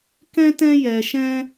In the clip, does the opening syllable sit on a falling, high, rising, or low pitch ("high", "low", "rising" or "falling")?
high